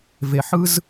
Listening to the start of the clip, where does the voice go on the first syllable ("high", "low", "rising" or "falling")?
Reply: low